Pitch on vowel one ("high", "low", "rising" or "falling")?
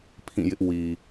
falling